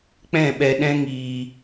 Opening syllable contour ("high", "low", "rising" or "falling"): falling